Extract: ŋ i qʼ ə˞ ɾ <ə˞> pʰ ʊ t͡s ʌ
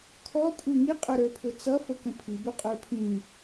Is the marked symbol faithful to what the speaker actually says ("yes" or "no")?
yes